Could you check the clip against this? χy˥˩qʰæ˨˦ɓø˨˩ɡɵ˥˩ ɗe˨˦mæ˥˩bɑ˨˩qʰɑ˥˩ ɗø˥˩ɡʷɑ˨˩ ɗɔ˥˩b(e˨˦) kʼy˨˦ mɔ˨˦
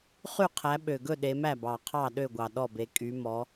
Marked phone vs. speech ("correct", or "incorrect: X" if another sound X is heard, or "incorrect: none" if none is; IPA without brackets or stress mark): correct